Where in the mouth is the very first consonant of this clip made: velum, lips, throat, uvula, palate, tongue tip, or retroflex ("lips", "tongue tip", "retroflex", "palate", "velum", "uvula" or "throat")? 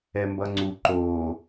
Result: lips